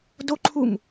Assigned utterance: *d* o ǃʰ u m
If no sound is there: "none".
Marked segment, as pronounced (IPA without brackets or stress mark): d